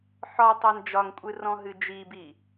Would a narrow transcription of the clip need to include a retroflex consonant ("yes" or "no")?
no